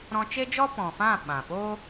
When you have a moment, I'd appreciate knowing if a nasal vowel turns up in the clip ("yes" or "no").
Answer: yes